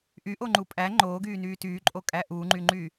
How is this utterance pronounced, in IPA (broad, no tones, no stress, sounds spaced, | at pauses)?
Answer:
ʔ y ʔ o ŋ͡ǃ u pʼ æ ŋ͡ǃ oː ɡ yː n yː t yː ǃʼ o kʼ æ ʔ u ŋ͡ǃ y ŋ͡ǃ y